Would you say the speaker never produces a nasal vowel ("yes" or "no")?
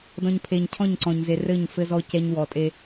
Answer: no